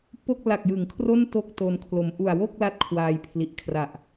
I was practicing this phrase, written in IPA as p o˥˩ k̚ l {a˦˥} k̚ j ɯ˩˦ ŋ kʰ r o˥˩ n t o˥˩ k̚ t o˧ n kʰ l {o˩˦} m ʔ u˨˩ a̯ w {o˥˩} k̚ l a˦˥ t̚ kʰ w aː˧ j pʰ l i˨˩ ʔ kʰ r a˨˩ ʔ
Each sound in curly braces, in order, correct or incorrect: incorrect: a˨˩, incorrect: o˨˩, correct

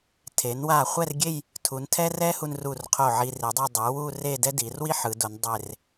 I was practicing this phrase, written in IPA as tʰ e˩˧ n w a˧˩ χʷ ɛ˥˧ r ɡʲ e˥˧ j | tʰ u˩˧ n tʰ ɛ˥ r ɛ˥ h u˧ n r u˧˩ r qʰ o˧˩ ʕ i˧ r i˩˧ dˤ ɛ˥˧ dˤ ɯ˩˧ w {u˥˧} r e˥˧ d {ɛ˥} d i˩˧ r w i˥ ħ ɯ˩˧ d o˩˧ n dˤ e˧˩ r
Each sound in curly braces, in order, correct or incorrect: correct, correct

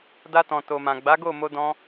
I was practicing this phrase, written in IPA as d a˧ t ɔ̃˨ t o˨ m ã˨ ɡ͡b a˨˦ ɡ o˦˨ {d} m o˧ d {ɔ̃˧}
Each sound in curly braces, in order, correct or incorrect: incorrect: none, correct

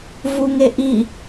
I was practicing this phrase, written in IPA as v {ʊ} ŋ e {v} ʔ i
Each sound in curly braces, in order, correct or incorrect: incorrect: u, incorrect: none

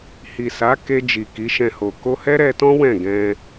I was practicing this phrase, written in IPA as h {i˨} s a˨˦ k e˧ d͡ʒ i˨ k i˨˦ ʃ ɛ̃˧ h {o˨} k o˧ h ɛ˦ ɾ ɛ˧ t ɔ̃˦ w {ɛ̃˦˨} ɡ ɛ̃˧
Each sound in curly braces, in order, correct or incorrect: correct, correct, correct

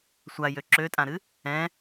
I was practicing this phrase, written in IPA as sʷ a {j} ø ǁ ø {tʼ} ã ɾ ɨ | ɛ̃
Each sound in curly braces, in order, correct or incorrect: correct, correct

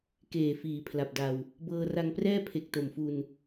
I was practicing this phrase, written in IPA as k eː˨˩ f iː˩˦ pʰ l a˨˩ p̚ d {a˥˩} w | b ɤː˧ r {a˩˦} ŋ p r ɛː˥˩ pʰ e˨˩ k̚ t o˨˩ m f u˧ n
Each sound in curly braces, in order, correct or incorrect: incorrect: a˧, incorrect: a˧

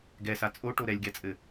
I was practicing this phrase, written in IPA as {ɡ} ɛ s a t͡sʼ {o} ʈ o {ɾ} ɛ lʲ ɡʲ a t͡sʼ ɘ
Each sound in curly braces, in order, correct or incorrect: correct, correct, correct

